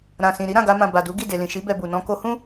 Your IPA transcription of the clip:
ɾ ã˨ s ĩ˨ ɾ i˨˦ ɾ ã˦˨ ɡ a˧ m ã˨ b a˨ d u˨˦ ɡ i˦˨ d e˨ l ĩ˨ ʃ i˨˦ b ɛ˧ b u˨ n ɔ̃˧ k o˧ h ũ˦

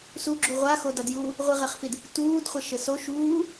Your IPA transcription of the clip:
s u ɡ͡ǁ u ʁʷ a x o d a d j uː | ʁʷ i ʁ e χ f i d | t uː d χʷ ɛ ʃ ɘ s o ʃ uː

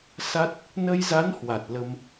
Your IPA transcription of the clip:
s a˦˥ t̚ | n ə˧ j z a˨˦ n h w a˨˩ t̚ l ə˧ m

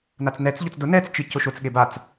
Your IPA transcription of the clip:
n a t͡s n ɛ t͡s ʎ ɔ t͡s d ʊ n ɛ t͡s t͡ʃ i c ʊ ʃ ʊ t͡s ɠ e b a t͡s

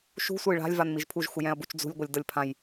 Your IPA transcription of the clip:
ʃ ṳ sʷ ɤ j ɭ a̤ lʲ v a n m i ʒ pʰ u ʒ x u j ɛ̃ ɐ̯ b u t͡ʃ d͡z ṳ lʲ ɡʷ ɤ lʲ d ɤ lʲ pʰ ã j

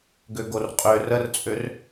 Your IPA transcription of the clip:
ɡ ø ɡ o r qʼ ø r ə r t͡sʼ ø r

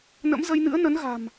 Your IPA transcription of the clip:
n ə̰˧˥ m z ə˧ j n ɨ̰˧˥ ə̯ n ə˨˦ n ɣ a̤˨˩ m

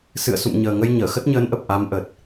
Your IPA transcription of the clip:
s ɨ̰˧˨ ə̯ s ṵ˧˨ m ɲ əː˨˩ ŋ ə˧ j ɲ əː˧˩ x ə˦˥ t̚ ɲ əː˨˦ n ʔ ə˨˩ p̚ ʔ a˨˦ m ʔ ə˨˩ t̚

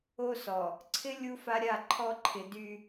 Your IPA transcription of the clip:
o˦ s ɔ˨ | ǀʰ ɪ˦ lʲ u˦ f a˦ ɾʲ a˦˨ ǃʰ ɔ˦ ǃʰ ɪ˨ d y˦

